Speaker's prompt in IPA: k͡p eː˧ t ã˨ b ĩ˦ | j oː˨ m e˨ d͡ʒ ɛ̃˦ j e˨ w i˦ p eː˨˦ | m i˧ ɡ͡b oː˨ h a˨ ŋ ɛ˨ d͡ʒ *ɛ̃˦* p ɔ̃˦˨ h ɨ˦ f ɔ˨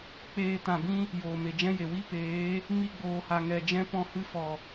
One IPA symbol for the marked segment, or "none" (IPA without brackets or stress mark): ɛ̃˦